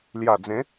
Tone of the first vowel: low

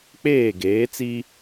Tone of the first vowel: falling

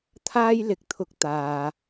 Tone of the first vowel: high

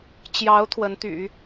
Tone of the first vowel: rising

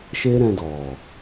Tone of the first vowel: high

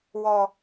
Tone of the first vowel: high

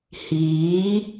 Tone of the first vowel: rising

